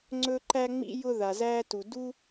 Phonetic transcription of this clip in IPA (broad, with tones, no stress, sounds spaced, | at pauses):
ŋ͡ǀ ɵ˥ ǃ æ˥ ŋ͡m ḭ˥ j ʊ˥ ð a˩ z æː˥ t u˩ d u˥